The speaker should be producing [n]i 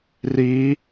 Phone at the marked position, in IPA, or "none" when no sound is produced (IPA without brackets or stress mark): r